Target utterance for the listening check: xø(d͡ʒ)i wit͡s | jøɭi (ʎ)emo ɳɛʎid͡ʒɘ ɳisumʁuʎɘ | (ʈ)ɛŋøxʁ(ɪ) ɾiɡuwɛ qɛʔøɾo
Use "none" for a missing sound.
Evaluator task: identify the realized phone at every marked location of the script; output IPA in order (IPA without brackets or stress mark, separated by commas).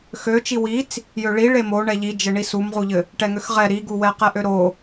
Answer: t͡ʃ, ɭ, ʈ, ɛ